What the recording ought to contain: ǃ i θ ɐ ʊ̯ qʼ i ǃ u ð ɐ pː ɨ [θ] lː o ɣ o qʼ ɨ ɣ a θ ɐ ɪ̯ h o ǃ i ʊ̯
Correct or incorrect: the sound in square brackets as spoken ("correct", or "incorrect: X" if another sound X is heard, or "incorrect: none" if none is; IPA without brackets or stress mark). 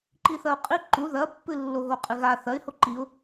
incorrect: none